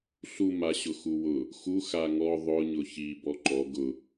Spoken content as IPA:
ɬ u m a ɕ ʊ x u w ʊ | x u x a ŋ ɔ ðˤ ʊ ɲ ʊ ç i b ɔ ǃ ɔ ɡ ʊ

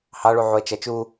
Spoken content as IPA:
h ɑ ɭ u ʕ u ə̯ t͡ʃ ɐ t͡ʃ u

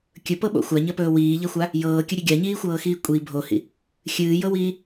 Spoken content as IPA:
kʲ ɵ p ɤ ɓ o̰ xʷ a ɲ ɐ p ɵː w iː ʎ ɐ xʷ a | j ɤː kʲ ɵ ɾʲ ɵ ɡʲ a ɲ iː xʷ ɤː x iː kʷʼ i bʱ o h ḭ | xʲ ɨː j ɤ w iː

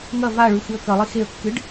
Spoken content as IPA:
ŋ ɐ v a ɭ ʉ x ɨ ə̯ k ɐ lˠ i x e ə̯ kː ɨ ɖ

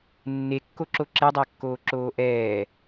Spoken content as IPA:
nː e kː o ǁ o ǁ e dˤ æ kː oː ǁ oː ʔ ɛː

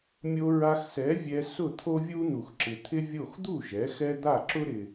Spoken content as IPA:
mʲ o˧ ɹ a˧ x s ɛ˩˥ vʲ ɛ˧ s ʊ˥˩ t̪ʰ o˥ vʲ u˥ n̪ u˩ x ǁ ɪ˩ t̪ʰ ɪ˥ vʲ o˥˩ x d̪ u˥˩ ʒ ɛ˩˥ x ɛ˥ d̪ a˥˩ ǁ ʊ˥ ɾ ɪ˩

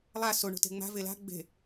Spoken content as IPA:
lˠ a s o ɳ o̤ t e̤ ŋ͡m a̤ v e l a̤ ɡ͡b e̤

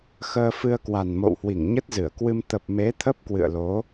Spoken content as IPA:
x əː˧ f ɨ˧ ə̯ k w a˨˩ n m o̰˧˨ w h w i˧˩ ŋ ɲ ə˦˥ t̚ z ɨ˧˩ ə̯ k w ɨ˧ m t̪ ə˨˩ p̚ m e˨˦ t̪ʰ ə˦˥ p̚ k w ɨ̰˧˨ ə̯ l o˨˦

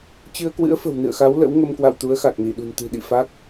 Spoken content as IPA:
t͡ɕ ɨ˧ ə̯ k w ɨ̰˧˥ ə̯ f ə̤˨˩ w n ɨ̰˧˨ ə̯ x a˨˦ w l ə̰˧˥ w ŋ ə˧ m k w a̰˧˨ w t̪ u˨˦ ə̯ x a˨˩ k̚ n i˧˩ ɗ ṳ˨˩ n t̪ ɨ̤˨˩ ɗ ḭ˧˨ f a˦˥ k̚

